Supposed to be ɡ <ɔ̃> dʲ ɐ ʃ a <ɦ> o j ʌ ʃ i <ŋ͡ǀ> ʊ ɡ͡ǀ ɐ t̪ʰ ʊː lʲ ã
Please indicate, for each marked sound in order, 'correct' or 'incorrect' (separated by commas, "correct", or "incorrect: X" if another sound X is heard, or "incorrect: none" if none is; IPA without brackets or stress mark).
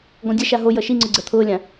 correct, correct, correct